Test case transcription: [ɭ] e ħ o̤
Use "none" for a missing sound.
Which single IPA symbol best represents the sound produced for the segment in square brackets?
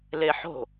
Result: l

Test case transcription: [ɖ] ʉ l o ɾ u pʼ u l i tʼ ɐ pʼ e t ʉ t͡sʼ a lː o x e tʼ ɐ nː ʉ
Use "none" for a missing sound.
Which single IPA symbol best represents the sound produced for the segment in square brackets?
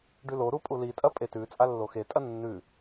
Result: ɖ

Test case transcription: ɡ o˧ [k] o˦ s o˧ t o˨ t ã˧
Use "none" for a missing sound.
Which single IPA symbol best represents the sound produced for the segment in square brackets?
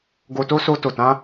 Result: t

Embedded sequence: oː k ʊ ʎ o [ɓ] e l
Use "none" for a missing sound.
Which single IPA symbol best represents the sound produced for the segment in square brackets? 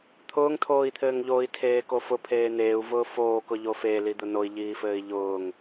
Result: f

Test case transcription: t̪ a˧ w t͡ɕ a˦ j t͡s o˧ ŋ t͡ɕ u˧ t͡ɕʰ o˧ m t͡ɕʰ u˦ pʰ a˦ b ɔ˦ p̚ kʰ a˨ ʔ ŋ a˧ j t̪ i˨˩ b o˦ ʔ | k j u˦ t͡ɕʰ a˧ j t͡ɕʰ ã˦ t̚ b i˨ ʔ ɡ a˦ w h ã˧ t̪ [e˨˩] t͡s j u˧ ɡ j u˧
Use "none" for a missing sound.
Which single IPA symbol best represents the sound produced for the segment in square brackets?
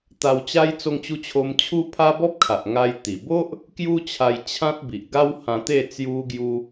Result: e˥˧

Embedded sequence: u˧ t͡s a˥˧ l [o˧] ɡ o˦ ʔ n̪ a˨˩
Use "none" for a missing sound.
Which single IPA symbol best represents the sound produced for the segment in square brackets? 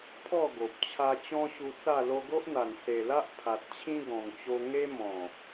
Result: o˧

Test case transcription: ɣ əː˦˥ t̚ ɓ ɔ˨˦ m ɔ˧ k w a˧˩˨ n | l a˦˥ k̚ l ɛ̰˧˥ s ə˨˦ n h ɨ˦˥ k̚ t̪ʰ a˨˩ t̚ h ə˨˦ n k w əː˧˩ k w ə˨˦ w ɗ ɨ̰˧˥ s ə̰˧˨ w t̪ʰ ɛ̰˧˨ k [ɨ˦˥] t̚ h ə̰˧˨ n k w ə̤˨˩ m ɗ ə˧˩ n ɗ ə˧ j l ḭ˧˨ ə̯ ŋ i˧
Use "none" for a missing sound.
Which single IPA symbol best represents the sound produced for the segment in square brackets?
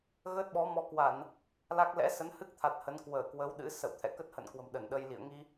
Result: ə˦˥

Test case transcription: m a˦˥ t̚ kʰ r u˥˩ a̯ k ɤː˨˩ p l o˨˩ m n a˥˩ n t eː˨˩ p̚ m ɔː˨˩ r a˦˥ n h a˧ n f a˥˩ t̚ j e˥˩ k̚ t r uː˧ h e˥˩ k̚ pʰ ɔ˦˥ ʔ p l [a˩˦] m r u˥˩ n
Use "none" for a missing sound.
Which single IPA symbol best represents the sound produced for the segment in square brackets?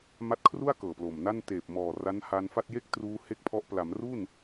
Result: a˩˦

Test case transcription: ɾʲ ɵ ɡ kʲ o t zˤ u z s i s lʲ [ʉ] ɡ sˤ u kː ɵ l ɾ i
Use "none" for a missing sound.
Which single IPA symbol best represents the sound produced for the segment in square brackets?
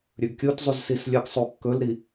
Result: ə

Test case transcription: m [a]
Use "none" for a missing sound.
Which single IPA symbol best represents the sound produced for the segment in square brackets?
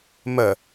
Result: ə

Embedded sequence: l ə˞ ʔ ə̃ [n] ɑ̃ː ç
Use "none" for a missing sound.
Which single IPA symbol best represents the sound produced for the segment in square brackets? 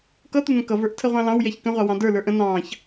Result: n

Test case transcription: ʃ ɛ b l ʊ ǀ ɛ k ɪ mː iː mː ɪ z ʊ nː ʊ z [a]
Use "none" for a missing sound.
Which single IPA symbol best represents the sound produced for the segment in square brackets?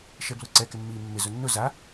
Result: a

